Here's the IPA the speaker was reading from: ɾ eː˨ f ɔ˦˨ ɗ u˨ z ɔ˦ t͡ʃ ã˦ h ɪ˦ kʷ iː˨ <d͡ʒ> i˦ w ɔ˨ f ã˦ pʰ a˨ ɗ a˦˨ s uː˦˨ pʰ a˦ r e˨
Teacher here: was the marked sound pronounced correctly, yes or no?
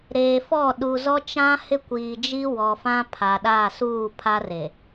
yes